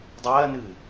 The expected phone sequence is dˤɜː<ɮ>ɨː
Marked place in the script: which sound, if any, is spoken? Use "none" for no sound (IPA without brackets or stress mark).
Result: n